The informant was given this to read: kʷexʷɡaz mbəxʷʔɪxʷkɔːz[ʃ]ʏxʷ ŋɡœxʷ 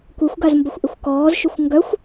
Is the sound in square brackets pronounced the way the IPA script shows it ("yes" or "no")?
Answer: yes